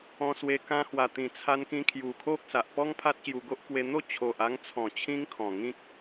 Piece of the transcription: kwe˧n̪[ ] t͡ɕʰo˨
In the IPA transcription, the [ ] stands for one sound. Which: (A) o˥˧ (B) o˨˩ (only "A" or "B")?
A